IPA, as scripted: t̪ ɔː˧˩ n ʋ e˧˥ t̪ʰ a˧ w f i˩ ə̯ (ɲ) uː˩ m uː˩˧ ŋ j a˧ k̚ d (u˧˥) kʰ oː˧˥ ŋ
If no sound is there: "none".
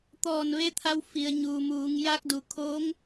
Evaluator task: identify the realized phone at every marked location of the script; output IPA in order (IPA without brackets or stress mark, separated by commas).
ɲ, u˩